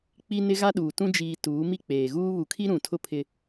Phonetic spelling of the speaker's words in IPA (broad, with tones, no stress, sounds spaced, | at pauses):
k͡p i˦ n ɪ˦ ɣ a˦ ɗ uː˨ t ũ˦ d͡ʒ iː˨ t uː˨˦ m i˦ k͡p eː˨ ɣ uː˦ β u˨ kʰ i˦ ɾ ũ˨ tʰ ʊ˦ pʰ ɪ˦